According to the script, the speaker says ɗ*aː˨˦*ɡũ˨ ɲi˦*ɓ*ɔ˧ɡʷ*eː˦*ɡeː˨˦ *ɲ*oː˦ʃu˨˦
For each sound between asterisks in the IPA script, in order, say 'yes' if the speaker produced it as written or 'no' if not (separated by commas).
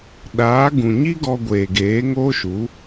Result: yes, no, no, no